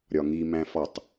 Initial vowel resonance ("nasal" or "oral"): oral